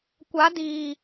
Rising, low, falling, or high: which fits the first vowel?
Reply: rising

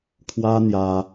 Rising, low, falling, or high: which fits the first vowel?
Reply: high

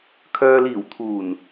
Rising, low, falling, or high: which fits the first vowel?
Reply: low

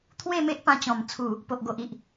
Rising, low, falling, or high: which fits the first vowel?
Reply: falling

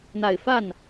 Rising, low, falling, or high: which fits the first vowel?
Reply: low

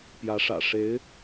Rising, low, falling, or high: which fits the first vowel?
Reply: rising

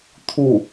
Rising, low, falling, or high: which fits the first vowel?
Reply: falling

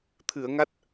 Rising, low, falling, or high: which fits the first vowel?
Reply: low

